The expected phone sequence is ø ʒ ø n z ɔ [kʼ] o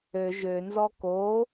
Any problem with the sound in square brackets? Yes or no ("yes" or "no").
yes